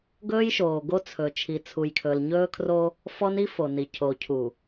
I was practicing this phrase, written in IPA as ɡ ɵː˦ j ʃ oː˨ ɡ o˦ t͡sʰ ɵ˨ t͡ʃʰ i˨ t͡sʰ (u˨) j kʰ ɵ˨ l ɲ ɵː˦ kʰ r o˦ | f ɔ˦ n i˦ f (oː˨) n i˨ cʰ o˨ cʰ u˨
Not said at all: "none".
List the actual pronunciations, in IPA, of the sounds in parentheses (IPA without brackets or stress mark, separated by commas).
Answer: u˨, o˨